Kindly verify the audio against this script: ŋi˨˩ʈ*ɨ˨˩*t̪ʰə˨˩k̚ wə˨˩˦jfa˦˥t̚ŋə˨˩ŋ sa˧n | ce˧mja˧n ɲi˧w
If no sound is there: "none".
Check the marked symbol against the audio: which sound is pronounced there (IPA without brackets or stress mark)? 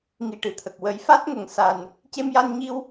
ɨ˨˩